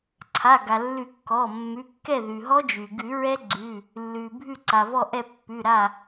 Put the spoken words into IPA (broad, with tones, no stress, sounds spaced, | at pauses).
ǀʰ a˩˧˩ ɡ a˩ lː ʉ˨˩˦ kː ɔ˩˧˩ mː ʉ˩˧˩ kː ɛ˥˩ ð ʉ˩ ɦ ɔ˦˥ d͡ʒ ʉ˩ ɡ ʉ˨˩˦ ɹ ɛ˦˥ ɡ͡ǀ ʉ˩˧˩ | lː ʉ˩ bʱ ʉ˥˩ ǀ a˩ v ɔ˥˩ ʔ ɛ˥˩ pː ʉ˩˧˩ ɾ a˥˩